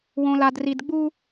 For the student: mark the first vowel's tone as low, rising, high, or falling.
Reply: low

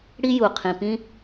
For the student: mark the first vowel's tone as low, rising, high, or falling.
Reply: high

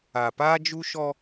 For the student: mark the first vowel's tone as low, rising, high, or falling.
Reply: low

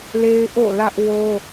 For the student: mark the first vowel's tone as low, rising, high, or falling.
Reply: high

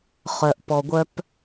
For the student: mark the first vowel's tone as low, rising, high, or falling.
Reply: low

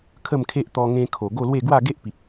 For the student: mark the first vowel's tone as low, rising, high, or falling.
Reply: falling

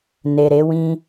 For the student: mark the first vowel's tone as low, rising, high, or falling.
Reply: low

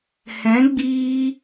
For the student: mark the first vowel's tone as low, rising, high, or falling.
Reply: rising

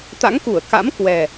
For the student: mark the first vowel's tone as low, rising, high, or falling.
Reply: rising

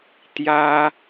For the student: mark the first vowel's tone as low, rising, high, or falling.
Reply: high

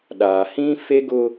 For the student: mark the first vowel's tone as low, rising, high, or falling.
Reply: low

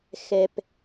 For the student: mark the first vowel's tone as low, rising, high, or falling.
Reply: low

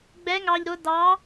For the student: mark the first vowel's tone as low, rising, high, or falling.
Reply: rising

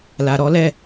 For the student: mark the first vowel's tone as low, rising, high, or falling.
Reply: low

